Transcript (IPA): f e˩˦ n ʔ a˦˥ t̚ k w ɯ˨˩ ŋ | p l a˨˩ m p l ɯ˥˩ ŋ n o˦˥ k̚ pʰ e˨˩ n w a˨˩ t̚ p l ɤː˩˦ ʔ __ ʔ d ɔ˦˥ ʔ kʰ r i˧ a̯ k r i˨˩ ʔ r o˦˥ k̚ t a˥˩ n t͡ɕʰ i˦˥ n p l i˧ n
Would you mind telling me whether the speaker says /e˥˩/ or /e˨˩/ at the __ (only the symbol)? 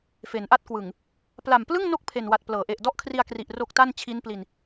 e˨˩